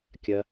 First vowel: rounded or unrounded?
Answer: unrounded